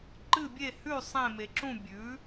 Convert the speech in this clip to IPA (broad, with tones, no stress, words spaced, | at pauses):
ǃɨ˥˧bʲe˥˧hʉ˥˧ sˤẽ˥˧me˧ǁũ˥˧ bʲʉ˨˥